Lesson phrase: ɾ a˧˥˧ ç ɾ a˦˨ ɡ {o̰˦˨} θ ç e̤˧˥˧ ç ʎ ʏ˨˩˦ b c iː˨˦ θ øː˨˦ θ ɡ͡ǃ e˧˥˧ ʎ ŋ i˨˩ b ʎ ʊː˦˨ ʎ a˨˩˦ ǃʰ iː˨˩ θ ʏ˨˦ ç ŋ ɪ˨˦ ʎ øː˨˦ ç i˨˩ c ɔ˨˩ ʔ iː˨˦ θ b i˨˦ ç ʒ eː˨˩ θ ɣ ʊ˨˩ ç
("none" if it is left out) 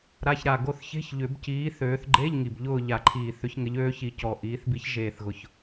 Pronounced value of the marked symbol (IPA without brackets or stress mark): o˦˨